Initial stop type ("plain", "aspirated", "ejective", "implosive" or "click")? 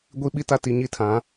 plain